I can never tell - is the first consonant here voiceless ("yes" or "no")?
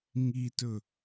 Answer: no